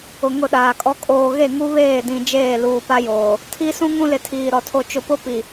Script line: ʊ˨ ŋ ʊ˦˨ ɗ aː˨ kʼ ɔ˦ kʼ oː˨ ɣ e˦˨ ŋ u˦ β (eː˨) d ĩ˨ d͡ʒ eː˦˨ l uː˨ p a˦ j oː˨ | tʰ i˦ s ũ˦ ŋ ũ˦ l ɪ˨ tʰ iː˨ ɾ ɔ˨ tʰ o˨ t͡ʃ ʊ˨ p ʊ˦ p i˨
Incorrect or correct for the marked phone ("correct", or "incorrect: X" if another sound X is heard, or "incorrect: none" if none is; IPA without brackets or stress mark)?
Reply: incorrect: eː˦˨